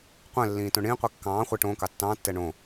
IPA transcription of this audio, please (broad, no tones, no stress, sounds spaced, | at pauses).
qʷ ɛ̃ lː ĩː t õ ɳ ĩː qʷ i kː ɑ̃ː χʷ ɛ ʈ õː k ɑ tː ɑ̃ː tː ɛ ɳ õ